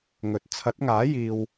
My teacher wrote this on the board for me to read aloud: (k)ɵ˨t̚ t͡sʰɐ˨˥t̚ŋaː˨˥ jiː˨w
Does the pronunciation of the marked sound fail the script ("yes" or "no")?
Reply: yes